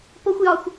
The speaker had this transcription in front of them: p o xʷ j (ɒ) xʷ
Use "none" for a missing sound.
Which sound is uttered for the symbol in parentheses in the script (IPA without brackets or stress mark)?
ɒ